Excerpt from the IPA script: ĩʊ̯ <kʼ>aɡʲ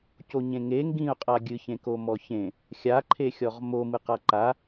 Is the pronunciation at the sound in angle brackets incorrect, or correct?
incorrect